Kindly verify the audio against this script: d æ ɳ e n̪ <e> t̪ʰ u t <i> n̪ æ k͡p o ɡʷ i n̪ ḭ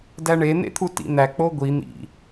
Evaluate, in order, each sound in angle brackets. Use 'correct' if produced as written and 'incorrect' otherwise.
incorrect, incorrect

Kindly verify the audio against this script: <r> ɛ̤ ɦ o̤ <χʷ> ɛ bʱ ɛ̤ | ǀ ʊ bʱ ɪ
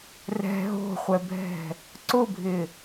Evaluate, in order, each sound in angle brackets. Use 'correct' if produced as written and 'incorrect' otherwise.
correct, correct

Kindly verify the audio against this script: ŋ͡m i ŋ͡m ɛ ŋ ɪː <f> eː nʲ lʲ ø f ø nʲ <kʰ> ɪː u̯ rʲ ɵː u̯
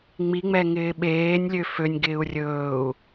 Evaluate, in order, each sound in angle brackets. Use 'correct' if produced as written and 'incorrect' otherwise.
incorrect, incorrect

